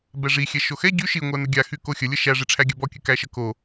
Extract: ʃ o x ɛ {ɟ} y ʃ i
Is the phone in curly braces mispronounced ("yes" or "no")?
no